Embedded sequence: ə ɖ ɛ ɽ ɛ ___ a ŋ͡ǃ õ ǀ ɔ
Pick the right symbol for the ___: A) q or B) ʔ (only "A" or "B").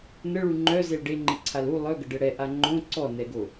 B